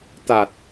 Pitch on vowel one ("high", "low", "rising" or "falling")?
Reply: low